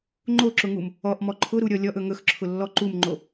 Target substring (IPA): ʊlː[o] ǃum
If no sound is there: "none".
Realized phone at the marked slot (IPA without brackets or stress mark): ɔ